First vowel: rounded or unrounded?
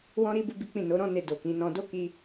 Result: rounded